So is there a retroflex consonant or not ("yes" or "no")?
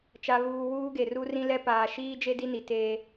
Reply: no